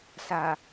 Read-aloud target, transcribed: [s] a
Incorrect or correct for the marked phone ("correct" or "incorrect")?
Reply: correct